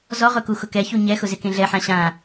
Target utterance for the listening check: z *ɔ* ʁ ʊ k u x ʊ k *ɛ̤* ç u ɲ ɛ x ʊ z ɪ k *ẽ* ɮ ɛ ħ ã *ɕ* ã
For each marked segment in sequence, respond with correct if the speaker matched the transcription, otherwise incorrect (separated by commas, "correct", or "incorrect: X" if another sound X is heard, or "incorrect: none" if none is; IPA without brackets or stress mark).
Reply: correct, incorrect: ɛ, correct, correct